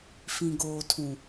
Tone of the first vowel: low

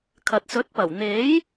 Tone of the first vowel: low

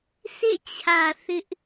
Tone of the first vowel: falling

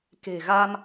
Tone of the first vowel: low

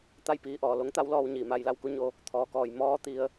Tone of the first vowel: falling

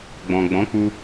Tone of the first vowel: low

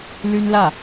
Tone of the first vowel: high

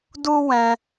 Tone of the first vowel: high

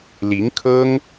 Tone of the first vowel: rising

